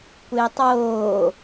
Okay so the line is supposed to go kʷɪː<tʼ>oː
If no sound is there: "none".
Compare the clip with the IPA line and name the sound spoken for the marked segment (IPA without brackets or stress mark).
tˤ